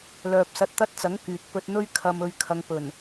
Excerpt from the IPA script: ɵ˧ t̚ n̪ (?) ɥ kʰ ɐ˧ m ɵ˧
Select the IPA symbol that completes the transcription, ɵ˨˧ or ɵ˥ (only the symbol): ɵ˥